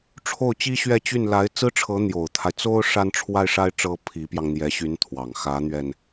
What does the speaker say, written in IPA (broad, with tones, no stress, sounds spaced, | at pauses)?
ʈ͡ʂʰ o˥˩ ʊ̯ t͡ɕ i˥ ɕ ɥ ɛ˥˧ t͡ɕ y˥˩ n l a˧˥ ɪ̯ t͡s ɹ̩˥ ʈ͡ʂʰ ɤ˧˥ n̪ j o˨˩ ʊ̯ t̪ʰ a˦ ɪ̯ t͡s o˥ ʊ̯ ʂ a˥ n ʈ͡ʂʰ w a˥ ɪ̯ ʂ a˥ ɪ̯ ʈ͡ʂ ɤ˥ pʰ i˧˥ p j ɑ˧ ŋ n̪ j ɛ˧˥ ɕ y˧˥ n t̪ʰ w ɑ˨˩ ŋ x ä˧˥ n̪ ɥ ɛ˧ n